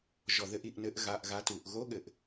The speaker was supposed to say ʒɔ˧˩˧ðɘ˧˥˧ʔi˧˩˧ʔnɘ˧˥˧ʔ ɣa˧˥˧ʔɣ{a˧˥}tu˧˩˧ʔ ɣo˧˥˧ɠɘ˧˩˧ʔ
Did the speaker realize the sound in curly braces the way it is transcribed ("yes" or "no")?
yes